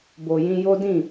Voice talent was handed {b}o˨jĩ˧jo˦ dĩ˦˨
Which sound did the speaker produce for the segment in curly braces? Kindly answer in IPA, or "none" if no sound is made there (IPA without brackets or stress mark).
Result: b